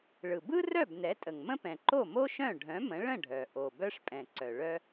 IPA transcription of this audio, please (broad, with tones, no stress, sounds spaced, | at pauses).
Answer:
ɭ ɯ˩ b ɯ˥ r œ˥˩ b n ɛ˩˥ tʼ ə˩ ŋ m ə̃˥ p ɛ̃˩ ǃ o˥˩ m o˥ ʃ œ̃˥˩ ɖʱ œ̃˩˥ m ə̃˩˥ ɭ ə̃˥˩ ɖʱ œ˩ ʔ o˩ b œ˥ ʂ pʼ ɛ̃˩ ǀ œ˩ ɭ œ˥